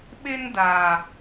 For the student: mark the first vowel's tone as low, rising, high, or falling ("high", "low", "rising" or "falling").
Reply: high